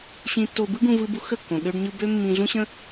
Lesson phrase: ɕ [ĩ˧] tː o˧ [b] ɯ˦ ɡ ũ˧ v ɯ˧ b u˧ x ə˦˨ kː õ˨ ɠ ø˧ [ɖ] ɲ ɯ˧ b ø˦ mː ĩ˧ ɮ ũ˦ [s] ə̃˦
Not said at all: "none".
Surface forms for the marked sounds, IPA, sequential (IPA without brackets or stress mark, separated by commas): ĩ˧, b, ɖ, ɕ